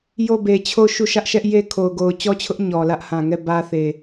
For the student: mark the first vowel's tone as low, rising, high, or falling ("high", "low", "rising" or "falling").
falling